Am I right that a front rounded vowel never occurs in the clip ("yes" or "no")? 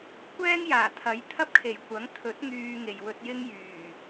no